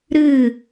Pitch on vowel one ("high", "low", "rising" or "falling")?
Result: falling